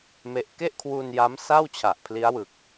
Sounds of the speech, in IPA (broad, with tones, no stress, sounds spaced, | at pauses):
m e˦˥ ʔ k e˥˩ ʔ kʰ w u˧ n j a˦˥ m s a˥˩ w t͡ɕʰ a˨˩ ʔ pʰ l i˦˥ a̯ w ɯ˨˩ k̚